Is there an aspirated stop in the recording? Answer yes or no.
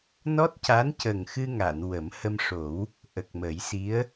no